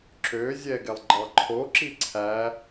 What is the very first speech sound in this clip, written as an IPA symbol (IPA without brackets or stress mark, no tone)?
ǁ